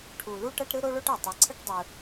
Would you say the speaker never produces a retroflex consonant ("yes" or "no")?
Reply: no